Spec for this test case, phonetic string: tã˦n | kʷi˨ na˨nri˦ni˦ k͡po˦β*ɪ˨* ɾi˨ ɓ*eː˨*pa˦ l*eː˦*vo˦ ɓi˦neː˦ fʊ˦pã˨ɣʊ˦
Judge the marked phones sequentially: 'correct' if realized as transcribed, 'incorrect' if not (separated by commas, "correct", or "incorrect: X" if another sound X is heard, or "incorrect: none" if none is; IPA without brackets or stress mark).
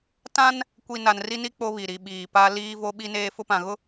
incorrect: i˨, incorrect: iː˨, incorrect: iː˦